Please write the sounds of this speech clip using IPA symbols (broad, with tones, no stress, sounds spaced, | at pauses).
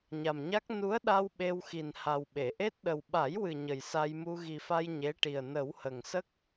ɲ a˨˩ m ɲ a˦˥ k̚ n u˧˥ ə̯ ɗ a˧ w ɓ e˧ w x i˨˩ n h a˨˩ w ɓ e˨˩˨ ʔ e˦˥ t̚ ɗ ə˨˩ w ɓ a˨˩˦ j w ɨ˨˩ ɲ ə˨˩ j s a˧ j m u˧ ɣ i˨˩ f a˧ j ɲ e˧˥ ʈ i˨˩ ə̯ n ə˨˩˦ w h ə˨˩ ŋ s ə˦˥ k̚